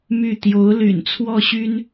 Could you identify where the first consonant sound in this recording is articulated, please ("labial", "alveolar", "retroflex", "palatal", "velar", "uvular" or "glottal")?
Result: labial